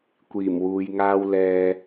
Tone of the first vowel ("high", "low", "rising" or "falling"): low